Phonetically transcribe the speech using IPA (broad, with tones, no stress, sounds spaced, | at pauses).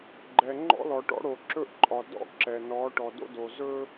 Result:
ɡ͡ǃ ɛ˨ ŋ͡ǃ ɔ̰˦ l ɔ˨ ʈ ɔ̰˦ ɽ o˨ ǁ ɵ˦ ʔ ǃʼ ɒ˨ d ɔ̰˦ ǁ ɛ˨ n ɔ˨˦ ʈ ɔ˨ d o̰˦ d o˨ z ɵ˦